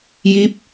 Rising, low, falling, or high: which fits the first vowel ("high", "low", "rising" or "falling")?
rising